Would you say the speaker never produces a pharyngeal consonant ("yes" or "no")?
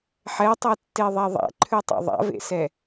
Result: no